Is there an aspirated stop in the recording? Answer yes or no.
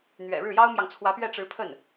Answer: yes